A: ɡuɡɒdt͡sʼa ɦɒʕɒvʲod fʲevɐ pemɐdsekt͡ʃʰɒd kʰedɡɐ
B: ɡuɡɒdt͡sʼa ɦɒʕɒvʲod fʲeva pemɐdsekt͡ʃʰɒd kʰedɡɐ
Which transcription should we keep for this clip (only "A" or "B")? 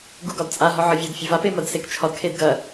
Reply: B